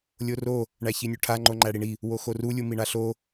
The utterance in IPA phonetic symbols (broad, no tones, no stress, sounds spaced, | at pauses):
lʲ o r o | ɳ æ ç i nʲ u ʈʰ a ŋ͡ǃ o ŋ͡ǃ æ ɽ i ɳ i | w o x o r u lʲ u m i ɳ a ɬ o